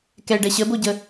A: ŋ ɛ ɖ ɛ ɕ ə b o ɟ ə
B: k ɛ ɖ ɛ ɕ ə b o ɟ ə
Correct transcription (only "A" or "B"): B